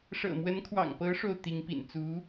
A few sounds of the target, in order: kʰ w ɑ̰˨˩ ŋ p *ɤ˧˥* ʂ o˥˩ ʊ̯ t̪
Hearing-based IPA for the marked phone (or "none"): ɤ˧˥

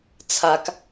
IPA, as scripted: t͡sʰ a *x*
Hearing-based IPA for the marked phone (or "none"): k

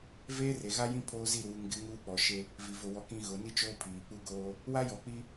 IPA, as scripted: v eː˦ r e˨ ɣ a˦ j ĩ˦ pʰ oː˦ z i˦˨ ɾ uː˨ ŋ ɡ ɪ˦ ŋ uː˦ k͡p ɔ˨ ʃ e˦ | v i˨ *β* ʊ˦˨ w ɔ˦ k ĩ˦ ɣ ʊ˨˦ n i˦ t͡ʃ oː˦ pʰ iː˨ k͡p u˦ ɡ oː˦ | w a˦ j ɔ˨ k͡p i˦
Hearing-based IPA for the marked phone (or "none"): v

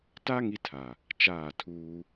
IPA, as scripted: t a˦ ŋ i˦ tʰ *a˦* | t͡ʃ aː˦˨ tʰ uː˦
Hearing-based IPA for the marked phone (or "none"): a˨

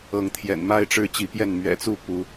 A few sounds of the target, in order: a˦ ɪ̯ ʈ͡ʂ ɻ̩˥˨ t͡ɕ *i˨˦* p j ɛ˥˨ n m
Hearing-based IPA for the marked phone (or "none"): i˨˦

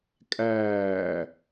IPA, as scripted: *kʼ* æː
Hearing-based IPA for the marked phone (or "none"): kʼ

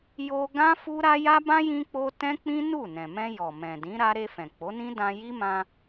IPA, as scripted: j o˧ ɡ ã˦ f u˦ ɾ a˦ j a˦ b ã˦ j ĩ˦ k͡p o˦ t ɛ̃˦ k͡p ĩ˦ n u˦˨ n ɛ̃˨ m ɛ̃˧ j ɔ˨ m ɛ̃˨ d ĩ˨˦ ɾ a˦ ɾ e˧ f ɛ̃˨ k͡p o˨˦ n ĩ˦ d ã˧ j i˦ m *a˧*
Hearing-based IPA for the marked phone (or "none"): ã˧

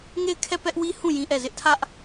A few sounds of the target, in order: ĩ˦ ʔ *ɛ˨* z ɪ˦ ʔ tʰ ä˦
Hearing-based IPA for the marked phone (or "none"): ɛ˦˨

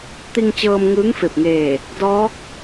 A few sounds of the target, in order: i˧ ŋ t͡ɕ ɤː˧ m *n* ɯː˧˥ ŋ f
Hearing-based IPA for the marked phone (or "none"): ŋ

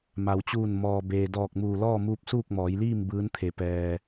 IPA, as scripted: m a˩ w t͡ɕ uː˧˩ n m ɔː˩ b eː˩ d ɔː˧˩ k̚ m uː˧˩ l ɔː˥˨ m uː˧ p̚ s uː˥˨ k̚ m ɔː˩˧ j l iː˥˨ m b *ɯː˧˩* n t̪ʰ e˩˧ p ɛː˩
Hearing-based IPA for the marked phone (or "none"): ɯː˧˥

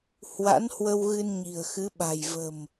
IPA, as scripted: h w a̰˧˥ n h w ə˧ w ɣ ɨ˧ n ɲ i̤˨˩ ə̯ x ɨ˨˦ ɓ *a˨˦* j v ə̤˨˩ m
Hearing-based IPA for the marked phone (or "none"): a̤˨˩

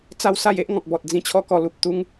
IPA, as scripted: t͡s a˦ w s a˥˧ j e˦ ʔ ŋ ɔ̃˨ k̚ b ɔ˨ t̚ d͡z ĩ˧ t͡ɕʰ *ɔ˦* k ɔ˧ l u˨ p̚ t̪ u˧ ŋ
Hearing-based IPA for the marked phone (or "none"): ɔ˦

